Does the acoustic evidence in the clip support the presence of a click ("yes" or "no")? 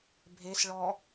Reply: no